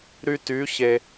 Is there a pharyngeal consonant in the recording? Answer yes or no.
no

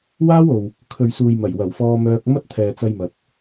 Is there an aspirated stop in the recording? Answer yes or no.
yes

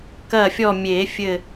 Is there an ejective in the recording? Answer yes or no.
no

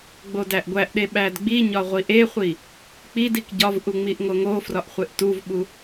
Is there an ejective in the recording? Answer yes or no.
no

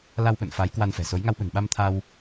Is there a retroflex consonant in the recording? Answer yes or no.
no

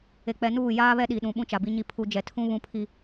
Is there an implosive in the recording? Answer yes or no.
yes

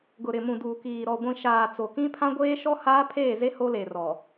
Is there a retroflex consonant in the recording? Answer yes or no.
no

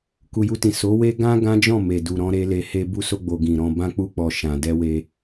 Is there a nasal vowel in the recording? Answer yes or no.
yes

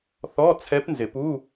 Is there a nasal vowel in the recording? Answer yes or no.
no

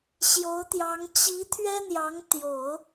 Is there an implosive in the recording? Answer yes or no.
no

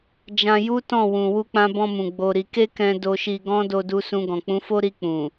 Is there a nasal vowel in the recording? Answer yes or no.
yes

